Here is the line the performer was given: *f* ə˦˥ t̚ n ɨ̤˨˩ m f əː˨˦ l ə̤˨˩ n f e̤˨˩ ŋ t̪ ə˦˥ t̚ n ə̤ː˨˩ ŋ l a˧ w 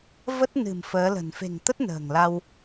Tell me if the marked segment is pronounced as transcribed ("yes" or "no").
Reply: no